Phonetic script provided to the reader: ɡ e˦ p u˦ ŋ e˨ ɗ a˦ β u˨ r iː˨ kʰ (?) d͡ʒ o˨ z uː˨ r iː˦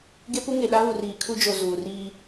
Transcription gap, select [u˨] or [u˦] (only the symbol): u˦